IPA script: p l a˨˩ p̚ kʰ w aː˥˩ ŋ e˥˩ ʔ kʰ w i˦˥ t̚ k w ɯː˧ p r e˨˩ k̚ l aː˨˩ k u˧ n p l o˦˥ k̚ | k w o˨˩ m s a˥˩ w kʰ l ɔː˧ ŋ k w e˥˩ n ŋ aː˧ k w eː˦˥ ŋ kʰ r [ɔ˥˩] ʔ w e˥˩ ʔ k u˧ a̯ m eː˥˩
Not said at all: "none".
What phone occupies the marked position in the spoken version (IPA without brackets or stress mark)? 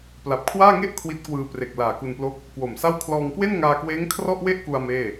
ɔ˥˩